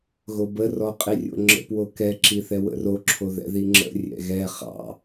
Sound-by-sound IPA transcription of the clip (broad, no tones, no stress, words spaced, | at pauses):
ɣobə rɔqʼirʲo̰ŋ͡ǁə̰ pwokɛ ǁiθɛwə̰ro ǁʰoðɛ̰ðiŋ͡ǁə̰ rʲɛ̰ɣɛ χɑ̰